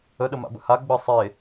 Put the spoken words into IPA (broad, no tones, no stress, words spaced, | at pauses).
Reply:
əɗəma̰bə̰ ha ɡ͡bə sˤe